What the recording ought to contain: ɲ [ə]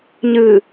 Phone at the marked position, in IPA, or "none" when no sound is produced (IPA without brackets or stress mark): ɨ